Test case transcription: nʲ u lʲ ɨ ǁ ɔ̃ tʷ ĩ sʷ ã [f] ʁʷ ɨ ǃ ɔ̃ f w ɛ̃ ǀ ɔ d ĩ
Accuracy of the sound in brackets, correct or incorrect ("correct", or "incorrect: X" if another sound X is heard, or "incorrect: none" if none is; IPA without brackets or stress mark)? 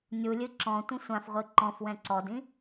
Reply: correct